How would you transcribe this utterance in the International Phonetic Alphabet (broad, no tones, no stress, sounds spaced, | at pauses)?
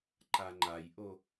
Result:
ǃ a ŋ͡ǃ a j ʔ o